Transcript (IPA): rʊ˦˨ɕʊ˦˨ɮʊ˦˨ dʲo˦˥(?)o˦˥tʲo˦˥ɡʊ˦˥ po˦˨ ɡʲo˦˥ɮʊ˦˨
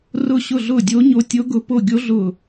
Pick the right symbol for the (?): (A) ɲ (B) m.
A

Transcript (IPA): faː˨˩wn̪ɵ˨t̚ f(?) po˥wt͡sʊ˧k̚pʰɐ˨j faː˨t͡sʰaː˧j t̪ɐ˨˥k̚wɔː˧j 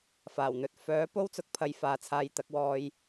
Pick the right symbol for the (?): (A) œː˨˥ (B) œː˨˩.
A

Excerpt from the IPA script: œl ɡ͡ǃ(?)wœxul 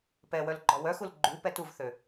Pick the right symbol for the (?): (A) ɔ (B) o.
A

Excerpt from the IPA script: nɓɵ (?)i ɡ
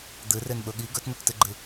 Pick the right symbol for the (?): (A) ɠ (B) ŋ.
A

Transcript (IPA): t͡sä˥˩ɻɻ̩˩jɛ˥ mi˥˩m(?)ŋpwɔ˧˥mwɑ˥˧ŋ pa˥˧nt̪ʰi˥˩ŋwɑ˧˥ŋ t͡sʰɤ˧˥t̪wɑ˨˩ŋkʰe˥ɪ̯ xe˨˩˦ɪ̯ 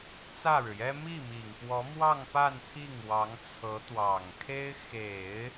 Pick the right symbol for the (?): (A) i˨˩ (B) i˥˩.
A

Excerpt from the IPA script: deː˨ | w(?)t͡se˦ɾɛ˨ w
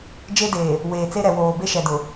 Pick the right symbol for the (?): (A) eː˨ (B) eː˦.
A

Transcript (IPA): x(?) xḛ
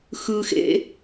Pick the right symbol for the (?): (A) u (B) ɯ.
B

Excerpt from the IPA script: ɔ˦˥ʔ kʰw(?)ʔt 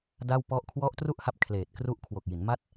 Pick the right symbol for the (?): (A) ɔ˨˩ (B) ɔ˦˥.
B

